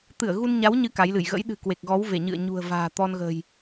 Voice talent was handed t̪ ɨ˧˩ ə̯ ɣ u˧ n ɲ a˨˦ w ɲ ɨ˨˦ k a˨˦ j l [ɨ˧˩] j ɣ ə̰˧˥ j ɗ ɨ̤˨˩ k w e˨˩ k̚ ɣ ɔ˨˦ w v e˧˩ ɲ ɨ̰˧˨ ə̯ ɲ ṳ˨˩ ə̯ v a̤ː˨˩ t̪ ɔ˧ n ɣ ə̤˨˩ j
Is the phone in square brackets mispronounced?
no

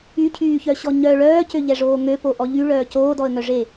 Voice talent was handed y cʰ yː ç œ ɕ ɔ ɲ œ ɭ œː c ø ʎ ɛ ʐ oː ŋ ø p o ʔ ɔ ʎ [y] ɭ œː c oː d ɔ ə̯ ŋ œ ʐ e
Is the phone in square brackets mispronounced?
no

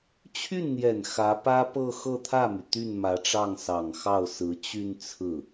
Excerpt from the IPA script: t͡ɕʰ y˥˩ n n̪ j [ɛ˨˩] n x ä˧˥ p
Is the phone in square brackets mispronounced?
no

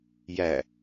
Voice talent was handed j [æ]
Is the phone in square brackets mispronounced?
no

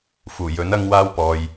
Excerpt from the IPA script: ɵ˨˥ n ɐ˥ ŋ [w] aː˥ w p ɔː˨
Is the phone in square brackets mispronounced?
no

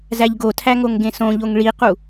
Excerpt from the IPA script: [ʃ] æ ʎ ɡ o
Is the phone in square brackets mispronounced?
yes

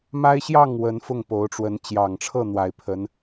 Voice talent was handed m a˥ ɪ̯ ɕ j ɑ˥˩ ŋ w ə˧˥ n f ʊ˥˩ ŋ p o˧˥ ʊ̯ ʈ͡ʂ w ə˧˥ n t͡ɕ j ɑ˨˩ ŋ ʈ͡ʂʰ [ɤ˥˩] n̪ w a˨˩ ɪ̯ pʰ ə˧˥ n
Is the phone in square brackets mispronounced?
no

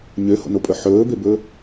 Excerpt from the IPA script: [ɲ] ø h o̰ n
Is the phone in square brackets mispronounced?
no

